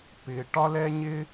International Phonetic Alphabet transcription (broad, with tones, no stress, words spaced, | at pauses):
pɪ˩ ʈɒ˥lɛ˥ɲɪ˥